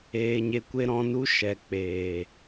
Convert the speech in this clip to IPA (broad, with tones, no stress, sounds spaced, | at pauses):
eː˨ ɲ e˨ kʷ e˧ ɾ ɔ̃˧ n u˦ ʃ ɛ˨ k͡p eː˨